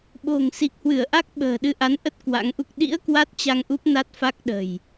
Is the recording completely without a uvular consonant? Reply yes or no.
yes